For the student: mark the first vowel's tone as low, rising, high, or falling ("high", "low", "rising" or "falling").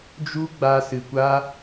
high